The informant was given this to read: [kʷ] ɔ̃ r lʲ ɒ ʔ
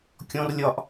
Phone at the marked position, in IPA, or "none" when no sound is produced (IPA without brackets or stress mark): kʲ